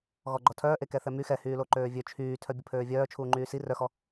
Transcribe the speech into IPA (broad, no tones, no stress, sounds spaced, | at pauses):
ɣ ɔ ɡ͡ǃ ɔ tʰ œː ʔ e k ɛ θ ɛ m y x ɛ h yː l o ǃ øː vʲ ø t͡ʃʰ yː tʰ œ bʲ ə pʰ øː vʲ œː t͡ʃʰ uː ŋ͡ǃ yː s i r œ x ɔ